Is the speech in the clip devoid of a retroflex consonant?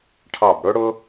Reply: no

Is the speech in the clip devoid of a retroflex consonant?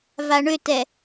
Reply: no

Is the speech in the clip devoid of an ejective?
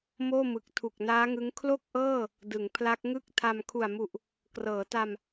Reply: yes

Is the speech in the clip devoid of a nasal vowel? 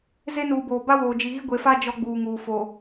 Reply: yes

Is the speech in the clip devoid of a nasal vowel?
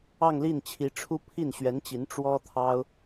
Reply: yes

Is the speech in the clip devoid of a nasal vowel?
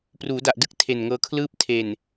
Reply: yes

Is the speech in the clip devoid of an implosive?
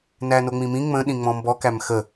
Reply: no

